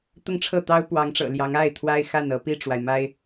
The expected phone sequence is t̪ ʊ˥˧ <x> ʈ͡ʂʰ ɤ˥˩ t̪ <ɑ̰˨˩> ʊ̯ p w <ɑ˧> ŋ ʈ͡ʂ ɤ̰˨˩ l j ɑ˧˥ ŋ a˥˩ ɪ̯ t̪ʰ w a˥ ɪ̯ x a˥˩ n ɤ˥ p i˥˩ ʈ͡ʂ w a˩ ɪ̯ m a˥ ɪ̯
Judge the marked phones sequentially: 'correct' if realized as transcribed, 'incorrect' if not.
incorrect: ŋ, incorrect: ɑ˥, incorrect: ɑ˧˥

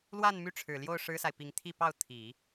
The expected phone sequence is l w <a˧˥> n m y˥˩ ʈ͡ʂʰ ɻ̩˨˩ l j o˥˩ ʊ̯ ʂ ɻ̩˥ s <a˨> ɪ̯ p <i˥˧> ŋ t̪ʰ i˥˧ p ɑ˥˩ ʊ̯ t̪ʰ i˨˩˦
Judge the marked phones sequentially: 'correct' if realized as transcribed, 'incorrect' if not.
incorrect: a˥˧, correct, incorrect: i˧˥

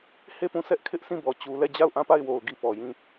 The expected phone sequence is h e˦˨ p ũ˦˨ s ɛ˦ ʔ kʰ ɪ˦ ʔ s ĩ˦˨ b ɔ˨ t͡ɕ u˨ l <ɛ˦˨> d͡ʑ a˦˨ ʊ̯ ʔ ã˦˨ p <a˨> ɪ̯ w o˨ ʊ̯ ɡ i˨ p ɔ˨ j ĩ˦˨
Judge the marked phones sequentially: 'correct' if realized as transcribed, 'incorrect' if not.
correct, incorrect: a˦˨

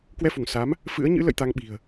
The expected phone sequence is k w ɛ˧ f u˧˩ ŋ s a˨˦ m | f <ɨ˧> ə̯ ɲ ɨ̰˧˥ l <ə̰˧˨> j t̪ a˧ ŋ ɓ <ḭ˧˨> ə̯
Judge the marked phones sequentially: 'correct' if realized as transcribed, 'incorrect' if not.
incorrect: ɨ̰˧˥, correct, incorrect: i̤˨˩

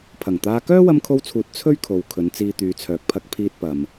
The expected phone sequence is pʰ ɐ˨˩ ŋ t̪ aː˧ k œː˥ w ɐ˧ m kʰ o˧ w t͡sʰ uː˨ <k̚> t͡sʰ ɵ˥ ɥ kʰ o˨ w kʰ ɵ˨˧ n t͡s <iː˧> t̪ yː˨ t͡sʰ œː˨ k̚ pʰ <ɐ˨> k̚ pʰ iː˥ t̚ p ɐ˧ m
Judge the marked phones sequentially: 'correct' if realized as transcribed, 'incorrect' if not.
incorrect: t̚, correct, incorrect: ɐ˧

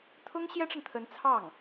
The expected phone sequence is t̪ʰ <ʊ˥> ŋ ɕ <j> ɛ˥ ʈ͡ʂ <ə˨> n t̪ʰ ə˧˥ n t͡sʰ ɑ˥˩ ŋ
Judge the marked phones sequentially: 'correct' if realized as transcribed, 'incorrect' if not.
correct, correct, correct

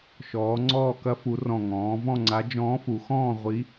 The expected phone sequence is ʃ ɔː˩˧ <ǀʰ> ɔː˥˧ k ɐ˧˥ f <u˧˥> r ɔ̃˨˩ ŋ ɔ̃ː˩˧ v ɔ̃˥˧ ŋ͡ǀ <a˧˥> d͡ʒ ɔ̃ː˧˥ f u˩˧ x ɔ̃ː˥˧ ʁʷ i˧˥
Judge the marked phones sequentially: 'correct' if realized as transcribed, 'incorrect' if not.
incorrect: ŋ͡ǀ, incorrect: u˩˧, correct

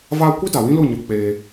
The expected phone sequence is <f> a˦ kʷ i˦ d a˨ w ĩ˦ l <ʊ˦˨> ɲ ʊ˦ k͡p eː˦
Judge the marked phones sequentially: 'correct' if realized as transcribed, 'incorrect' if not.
incorrect: v, correct

